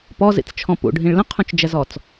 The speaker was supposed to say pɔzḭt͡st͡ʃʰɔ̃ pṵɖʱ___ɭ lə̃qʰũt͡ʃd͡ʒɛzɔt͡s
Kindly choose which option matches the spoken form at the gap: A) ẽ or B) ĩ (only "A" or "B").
B